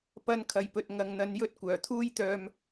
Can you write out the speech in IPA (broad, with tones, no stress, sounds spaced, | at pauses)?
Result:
p ɐ˧ n kʰ ɐ˨ j p ɵ˨ t̚ ŋ ɐ˨ ŋ n̪ ɐ˨˧ n j ɵ˧ t̚ kʷ œː˨˩ t̪ʰ uː˥ j t̪ œː˧ m